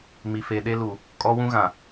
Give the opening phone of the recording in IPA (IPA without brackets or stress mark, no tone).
m